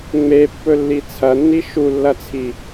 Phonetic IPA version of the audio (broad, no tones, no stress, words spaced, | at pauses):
ŋ͡mepːɵlːi t͡sʰɐnːi ʃulːɐt͡sʰi